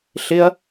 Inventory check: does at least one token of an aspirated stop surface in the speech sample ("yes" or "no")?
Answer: no